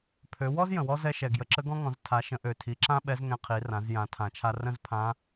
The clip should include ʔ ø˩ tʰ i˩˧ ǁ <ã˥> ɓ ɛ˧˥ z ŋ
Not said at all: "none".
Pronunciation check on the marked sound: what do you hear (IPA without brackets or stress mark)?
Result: ã˥